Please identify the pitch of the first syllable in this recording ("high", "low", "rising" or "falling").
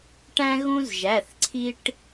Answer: high